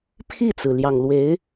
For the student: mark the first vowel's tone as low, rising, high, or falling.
falling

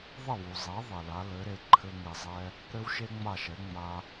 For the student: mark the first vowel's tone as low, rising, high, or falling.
falling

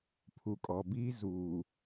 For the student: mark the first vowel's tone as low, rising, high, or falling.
low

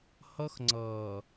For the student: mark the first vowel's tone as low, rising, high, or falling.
high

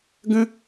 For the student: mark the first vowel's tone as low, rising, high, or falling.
high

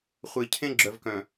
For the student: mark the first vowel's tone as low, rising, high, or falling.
low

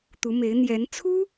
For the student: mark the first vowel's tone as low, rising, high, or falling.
rising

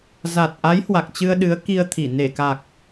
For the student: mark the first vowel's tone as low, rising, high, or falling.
low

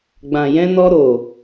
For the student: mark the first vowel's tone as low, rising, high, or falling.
low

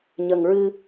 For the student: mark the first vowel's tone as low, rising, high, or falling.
low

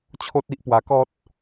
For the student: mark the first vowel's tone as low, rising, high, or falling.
high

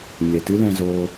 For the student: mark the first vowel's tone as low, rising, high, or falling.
low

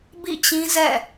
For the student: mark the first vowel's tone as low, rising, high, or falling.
falling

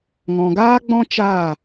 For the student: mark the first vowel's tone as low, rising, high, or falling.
low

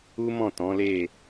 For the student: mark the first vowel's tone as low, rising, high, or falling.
high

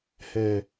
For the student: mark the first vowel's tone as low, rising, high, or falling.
low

